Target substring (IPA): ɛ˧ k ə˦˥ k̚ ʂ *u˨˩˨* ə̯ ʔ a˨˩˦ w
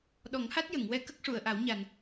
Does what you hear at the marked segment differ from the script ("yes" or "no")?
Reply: no